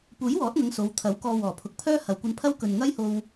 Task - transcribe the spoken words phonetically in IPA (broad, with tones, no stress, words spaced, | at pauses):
puː˨˥jwɔː˨˥t̚ŋɐ˨˧ŋ so˨˧wt̪ʰɐ˨˥wkɔː˧ wɔː˨˩pʰʊ˨˥k̚pʰœː˥ hɐ˨wkʷɐ˧npʰɐ˥w kɵ˨nŋɐ˥jho˧w